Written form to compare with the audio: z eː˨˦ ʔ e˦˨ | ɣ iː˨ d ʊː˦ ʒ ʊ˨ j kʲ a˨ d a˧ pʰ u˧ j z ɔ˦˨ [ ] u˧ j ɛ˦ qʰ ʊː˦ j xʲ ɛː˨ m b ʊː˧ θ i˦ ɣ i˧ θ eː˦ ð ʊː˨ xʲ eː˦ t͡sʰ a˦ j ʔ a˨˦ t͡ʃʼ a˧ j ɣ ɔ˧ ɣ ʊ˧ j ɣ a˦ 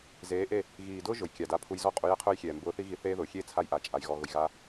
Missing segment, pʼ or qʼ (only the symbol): qʼ